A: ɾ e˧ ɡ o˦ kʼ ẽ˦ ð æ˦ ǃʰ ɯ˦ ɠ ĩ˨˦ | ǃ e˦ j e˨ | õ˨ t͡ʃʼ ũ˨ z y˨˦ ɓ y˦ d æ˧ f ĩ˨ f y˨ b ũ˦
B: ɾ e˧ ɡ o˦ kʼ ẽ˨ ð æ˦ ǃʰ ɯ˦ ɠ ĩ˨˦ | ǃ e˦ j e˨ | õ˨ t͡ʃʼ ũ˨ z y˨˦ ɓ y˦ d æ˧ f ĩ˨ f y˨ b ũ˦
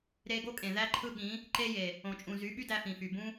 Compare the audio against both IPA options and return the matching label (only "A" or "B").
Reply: B